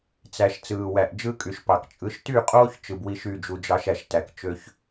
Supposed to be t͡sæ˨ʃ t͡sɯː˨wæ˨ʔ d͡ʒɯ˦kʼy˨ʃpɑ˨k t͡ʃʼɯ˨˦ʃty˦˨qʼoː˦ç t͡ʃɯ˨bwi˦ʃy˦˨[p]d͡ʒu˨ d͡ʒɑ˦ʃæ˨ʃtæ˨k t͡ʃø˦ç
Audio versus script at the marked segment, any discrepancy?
yes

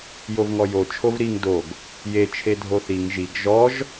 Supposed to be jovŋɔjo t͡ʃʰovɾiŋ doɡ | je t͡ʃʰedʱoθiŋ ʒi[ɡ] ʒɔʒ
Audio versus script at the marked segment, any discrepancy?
no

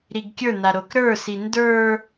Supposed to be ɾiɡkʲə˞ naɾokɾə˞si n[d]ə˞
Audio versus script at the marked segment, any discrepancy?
no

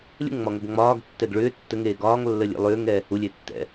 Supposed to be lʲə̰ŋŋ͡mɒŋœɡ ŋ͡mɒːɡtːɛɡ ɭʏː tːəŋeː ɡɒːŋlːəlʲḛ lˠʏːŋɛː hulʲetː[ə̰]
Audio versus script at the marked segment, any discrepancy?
yes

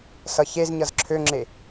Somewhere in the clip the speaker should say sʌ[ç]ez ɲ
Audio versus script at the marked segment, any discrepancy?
no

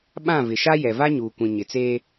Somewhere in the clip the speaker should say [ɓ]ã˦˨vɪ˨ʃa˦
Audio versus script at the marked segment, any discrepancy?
no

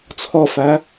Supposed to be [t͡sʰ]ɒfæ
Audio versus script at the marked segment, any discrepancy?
no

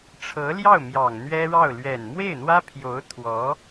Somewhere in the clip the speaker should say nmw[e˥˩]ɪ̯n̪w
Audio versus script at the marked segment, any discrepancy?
no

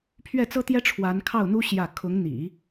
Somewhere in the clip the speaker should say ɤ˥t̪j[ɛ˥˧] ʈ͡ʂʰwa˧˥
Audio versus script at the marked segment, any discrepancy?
yes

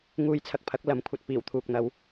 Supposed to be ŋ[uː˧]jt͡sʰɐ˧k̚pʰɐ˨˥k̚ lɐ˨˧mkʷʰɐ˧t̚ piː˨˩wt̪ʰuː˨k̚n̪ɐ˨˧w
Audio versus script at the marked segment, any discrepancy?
no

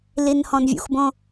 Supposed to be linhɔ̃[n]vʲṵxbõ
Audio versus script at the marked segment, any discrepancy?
no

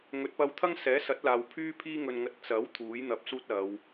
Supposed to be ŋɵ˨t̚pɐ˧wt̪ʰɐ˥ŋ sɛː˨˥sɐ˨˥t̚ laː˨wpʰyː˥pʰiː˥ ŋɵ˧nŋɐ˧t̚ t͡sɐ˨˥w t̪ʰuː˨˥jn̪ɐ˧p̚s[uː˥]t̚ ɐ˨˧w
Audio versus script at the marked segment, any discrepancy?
no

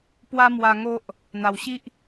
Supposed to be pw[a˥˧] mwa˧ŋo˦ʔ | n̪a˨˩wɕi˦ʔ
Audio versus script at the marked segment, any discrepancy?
yes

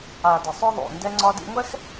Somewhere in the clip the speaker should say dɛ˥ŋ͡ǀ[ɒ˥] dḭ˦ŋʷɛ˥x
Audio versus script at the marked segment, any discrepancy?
no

